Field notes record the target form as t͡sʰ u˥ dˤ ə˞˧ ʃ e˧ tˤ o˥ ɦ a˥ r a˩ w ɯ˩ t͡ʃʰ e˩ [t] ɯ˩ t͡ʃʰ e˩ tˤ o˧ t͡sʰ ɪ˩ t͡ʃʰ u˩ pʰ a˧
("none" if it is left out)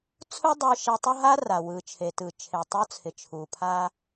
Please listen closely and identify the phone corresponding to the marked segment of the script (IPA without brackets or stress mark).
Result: t